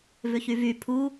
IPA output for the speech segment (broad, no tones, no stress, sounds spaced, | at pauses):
v ʏ ç y v y pʰ u